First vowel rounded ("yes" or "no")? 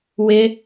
no